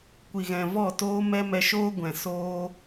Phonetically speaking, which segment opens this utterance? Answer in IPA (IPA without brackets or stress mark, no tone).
kʷ